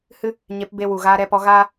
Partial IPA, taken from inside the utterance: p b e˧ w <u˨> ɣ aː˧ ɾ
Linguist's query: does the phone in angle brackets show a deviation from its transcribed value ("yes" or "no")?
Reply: no